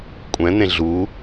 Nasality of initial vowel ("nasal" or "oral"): nasal